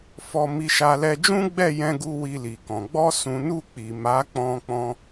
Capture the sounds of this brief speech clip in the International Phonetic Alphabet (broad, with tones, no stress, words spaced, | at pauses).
fɔ˧mi˧ʃa˧ lɛ˧d͡ʒũ˦ɡ͡bɛ˦˨ jɛ̃˧ɡu˧ wi˧li˨kɔ̃˨ ɡ͡bɔ˧sũ˨nu˧ k͡pi˨ma˨˦ k͡pɔ̃˧ k͡pɔ̃˧